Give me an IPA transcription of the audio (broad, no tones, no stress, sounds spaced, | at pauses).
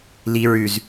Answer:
l i ɹ ʉ z